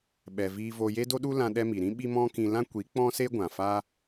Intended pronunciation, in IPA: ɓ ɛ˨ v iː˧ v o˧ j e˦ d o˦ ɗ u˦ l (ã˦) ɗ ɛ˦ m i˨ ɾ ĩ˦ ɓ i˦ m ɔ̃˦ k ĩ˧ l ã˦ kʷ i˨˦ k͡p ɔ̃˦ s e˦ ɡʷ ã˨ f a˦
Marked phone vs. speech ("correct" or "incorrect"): correct